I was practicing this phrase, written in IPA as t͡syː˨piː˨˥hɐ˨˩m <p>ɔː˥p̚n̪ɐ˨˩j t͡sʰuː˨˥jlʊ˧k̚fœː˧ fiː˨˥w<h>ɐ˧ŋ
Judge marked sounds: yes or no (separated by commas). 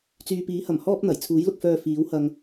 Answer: no, yes